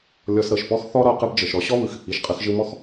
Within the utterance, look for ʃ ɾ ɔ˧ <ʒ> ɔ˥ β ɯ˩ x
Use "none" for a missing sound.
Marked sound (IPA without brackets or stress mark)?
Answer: ɕ